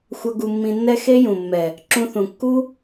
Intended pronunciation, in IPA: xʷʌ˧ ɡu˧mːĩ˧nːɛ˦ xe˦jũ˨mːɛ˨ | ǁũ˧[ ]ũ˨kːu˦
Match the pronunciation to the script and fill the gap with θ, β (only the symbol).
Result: θ